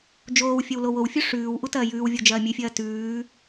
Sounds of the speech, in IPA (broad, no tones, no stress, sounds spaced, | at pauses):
d͡ʒ oː w fʲ ɐ w l o w o w fʲ u ʂ ʉː w ʔ u t ɐː j ʉː w vʲ o d͡ʒ ɐː mʲ ʉ fʲ ɐː t ʉː